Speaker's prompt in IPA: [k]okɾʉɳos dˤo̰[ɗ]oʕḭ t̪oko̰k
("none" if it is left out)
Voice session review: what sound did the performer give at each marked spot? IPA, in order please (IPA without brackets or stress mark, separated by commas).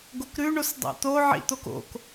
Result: ɡ, t̪